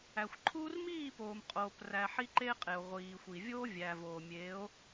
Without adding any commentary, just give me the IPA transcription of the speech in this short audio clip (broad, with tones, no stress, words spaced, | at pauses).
æ˨xʷ ǃʰuː˦r miː˦˨poː˨m qʼoː˨præ˨ ħi˦ǃeː˦qʼe˨o̯ ʁʷiː˨xʷi˨ vʲoː˦vʲæ˨voː˨mʲeː˨˦o̯